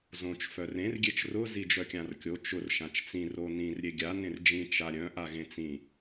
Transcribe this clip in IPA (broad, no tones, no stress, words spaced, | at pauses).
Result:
zõt͡ʃ fœrẽr ɡʲet͡ʃrʊ zid͡ʒœkʲãrkʲo t͡ʃʊr ʃãt͡ʃt͡sĩ ronĩr ɾʲeɡʲa nẽrd͡ʒĩ t͡ʃaɾʲœ̃ ʔaɣẽt͡sĩ